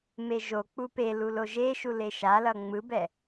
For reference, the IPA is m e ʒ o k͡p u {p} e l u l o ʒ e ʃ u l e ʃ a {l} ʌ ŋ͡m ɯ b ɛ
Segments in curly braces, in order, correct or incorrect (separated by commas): correct, correct